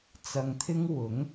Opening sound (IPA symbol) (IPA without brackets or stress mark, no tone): t͡s